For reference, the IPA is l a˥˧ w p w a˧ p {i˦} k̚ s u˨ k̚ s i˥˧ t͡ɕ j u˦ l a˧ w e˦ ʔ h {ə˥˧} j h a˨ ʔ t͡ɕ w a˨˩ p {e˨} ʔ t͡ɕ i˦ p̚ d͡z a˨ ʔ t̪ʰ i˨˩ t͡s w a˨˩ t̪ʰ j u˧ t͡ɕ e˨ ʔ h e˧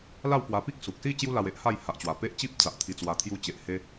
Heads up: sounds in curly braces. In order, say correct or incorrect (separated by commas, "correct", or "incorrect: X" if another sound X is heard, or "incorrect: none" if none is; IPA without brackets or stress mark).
correct, incorrect: a˥˧, incorrect: e˦